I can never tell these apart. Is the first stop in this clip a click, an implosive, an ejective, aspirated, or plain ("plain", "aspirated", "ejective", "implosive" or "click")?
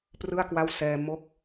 plain